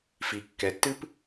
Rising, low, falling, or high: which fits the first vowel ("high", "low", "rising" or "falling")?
low